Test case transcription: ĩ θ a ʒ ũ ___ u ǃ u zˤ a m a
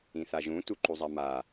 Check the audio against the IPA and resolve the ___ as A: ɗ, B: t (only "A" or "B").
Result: B